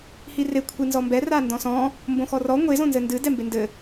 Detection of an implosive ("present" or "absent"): absent